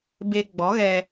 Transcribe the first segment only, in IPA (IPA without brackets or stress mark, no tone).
b